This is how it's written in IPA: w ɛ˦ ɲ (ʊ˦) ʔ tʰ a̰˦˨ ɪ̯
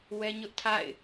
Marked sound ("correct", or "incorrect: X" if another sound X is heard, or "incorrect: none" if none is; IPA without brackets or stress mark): correct